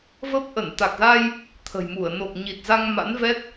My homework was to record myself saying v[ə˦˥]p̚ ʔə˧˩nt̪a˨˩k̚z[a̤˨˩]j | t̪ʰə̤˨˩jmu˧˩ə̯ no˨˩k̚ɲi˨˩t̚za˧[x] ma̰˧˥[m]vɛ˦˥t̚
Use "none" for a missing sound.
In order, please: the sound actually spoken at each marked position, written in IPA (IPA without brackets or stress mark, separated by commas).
ə˦˥, a˧, ŋ, n